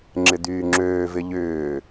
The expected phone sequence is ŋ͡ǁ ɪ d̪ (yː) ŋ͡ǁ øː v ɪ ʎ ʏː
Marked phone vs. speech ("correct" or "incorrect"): correct